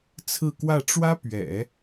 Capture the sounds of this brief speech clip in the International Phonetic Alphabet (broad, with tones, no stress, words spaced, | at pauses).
t͡sʰɹ̩˥˧kwä˥˩ ʈ͡ʂwä˥pɥɛ̰˨˩˦